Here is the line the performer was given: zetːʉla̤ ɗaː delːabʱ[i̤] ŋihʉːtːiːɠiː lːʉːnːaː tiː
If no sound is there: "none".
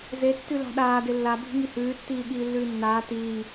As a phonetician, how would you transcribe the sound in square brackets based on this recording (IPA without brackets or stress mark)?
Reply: i̤